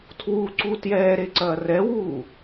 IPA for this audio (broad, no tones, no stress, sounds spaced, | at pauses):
tʰ w u ǀ u t j ɛː ɾ e ǀ ɐː r ɛ w uː